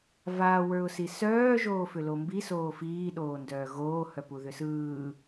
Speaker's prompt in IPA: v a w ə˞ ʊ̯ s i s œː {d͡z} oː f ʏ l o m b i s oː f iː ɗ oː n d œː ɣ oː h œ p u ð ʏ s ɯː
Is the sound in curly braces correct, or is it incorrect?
incorrect